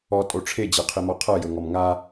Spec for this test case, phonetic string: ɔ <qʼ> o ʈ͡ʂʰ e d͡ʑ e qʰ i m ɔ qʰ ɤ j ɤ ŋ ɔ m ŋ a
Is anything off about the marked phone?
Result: yes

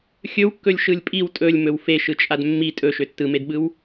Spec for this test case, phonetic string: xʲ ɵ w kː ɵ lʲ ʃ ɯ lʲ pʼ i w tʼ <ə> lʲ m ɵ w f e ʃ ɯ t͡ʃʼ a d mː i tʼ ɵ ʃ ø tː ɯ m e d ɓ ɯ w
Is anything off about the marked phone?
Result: yes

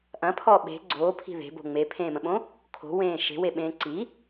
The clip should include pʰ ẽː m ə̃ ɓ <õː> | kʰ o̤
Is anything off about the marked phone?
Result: yes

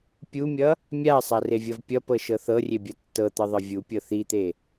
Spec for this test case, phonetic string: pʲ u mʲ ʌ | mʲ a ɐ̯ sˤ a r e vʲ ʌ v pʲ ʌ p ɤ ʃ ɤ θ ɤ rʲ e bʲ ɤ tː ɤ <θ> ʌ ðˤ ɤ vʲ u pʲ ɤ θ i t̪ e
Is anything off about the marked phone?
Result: yes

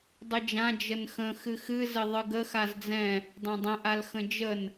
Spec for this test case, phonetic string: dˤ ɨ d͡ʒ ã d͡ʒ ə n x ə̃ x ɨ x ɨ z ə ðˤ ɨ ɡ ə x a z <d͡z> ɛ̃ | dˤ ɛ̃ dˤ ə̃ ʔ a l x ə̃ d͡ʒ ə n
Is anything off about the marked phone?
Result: no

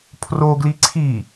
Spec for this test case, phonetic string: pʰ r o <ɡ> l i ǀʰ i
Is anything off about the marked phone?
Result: no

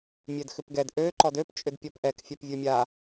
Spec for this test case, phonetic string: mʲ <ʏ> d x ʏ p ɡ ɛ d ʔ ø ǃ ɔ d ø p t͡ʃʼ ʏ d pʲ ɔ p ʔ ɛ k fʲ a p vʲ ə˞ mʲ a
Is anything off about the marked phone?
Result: yes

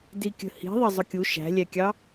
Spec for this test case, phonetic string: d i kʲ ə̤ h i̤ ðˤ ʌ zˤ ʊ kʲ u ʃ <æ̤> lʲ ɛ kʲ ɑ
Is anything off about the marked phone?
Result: no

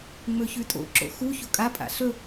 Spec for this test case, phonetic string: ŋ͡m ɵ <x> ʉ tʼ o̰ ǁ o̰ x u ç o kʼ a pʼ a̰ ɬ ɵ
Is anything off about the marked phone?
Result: yes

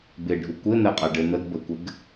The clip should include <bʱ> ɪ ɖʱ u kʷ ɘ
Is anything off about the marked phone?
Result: yes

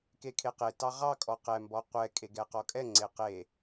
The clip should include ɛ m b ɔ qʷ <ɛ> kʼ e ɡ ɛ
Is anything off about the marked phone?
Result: no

